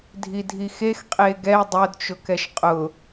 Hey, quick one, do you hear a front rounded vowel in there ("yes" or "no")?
no